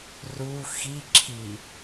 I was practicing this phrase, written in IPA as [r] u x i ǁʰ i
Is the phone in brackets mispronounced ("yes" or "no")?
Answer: no